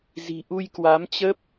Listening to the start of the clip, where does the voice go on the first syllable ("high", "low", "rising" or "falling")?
low